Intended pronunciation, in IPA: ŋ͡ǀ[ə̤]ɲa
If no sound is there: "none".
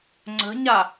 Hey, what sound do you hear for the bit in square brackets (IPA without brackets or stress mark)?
ə̤